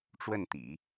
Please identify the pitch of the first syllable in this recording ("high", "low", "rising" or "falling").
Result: falling